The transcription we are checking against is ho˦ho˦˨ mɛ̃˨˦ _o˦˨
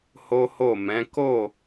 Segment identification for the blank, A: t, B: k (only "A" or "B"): B